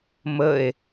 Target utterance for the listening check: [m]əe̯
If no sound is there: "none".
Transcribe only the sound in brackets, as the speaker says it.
m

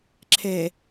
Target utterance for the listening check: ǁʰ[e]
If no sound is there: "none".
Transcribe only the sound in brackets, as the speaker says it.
e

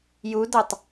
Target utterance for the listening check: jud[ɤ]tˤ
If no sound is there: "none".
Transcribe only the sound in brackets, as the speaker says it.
ɤ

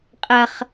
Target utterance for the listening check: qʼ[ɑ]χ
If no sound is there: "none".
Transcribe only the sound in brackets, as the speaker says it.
ɐ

